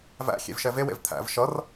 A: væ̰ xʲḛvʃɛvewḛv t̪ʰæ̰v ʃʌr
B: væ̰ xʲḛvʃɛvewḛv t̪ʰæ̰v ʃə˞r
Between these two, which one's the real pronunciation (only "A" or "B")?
A